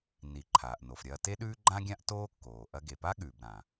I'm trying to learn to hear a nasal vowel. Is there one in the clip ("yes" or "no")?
yes